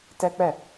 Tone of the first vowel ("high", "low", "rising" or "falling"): high